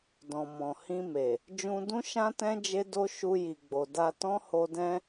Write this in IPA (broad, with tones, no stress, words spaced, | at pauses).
dɔ̃˨mɔ̃˨hĩ˧me˨ | d͡ʒũ˧dũ˦ʃã˦tɛ̃˦ d͡ʒe˦do˦ ʃu˧ji˨ɡ͡bo˨da˧ tɔ̃˦ho˧ dɛ̃˧